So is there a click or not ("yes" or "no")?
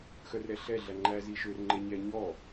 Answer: yes